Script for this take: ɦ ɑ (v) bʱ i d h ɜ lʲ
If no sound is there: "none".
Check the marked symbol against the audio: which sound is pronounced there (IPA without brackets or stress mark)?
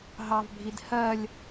v